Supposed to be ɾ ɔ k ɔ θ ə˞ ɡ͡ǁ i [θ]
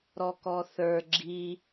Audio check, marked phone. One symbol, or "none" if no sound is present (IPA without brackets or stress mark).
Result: none